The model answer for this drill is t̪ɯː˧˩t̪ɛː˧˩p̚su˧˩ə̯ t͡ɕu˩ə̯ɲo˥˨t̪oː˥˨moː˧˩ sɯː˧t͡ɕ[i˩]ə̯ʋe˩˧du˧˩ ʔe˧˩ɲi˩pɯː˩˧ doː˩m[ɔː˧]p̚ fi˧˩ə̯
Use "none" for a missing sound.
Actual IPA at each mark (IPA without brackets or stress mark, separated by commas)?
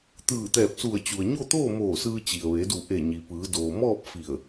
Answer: i˩, ɔː˥˨